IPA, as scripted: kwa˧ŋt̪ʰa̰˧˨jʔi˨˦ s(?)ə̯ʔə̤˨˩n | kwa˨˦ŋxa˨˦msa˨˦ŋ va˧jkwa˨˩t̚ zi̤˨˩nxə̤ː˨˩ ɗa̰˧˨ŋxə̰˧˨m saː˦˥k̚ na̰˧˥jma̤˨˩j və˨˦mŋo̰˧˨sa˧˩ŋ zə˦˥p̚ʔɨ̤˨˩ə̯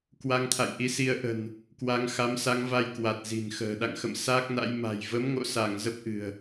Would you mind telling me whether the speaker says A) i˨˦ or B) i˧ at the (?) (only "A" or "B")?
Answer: A